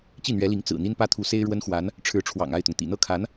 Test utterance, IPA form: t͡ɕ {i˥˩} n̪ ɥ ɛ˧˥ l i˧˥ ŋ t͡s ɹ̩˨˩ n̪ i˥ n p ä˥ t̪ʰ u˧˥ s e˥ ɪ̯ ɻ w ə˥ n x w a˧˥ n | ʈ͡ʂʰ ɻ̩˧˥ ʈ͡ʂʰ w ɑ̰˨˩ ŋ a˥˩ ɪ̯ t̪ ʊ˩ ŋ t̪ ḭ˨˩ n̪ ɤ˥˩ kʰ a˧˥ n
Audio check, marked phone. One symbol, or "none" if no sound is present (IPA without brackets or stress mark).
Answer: i˥˩